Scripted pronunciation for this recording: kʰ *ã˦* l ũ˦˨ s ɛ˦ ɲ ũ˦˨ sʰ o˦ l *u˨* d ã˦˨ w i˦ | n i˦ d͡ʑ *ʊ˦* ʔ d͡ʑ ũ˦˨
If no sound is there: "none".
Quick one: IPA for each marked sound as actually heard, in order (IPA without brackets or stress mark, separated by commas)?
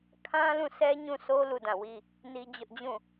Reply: ã˦, u˦˨, ʊ˦